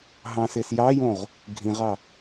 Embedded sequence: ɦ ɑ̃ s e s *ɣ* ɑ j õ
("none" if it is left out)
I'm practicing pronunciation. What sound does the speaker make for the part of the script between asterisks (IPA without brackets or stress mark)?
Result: j